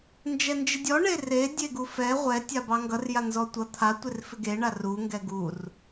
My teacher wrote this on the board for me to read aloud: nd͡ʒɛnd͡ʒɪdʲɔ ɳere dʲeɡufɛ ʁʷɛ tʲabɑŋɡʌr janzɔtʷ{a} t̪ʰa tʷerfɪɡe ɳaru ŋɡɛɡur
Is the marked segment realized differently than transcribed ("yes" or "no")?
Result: yes